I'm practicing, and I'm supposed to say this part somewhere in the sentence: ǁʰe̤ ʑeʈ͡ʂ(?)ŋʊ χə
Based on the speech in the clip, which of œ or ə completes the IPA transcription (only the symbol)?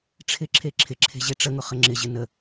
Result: ə